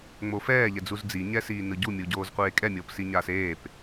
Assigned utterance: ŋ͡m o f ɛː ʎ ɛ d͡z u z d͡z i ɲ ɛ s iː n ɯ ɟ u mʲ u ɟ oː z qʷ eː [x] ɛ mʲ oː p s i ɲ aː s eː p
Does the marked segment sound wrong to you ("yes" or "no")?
yes